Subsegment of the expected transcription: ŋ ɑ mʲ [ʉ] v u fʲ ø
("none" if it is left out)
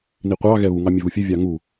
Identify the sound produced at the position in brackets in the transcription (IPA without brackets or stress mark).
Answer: ø